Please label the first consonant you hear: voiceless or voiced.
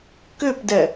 voiceless